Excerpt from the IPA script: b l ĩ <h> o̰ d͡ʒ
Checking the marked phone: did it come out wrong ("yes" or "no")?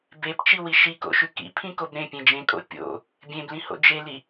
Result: no